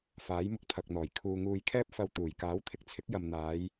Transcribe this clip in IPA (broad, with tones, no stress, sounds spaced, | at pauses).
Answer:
f aː˨˥ j m ʊ˧ k̚ t̪ʰ ɐ˨ k̚ n̪ ɔː˨˩ j kʰ uː˧ ŋ uː˧ j kʰ ɛː˥ p̚ f ɐ˧ w t̪ uː˨˩ j k aː˨˥ w t̪ʰ ɪ˧ k̚ t͡sʰ ɪ˨˥ k̚ j ɐ˨ m n̪ aː˨˧ j